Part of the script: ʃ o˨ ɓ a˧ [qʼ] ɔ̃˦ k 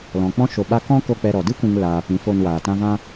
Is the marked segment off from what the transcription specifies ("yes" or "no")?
yes